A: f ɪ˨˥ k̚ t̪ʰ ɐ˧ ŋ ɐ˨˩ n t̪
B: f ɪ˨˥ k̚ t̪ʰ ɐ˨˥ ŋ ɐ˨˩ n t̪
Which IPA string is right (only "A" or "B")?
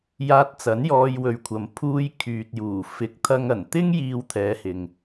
A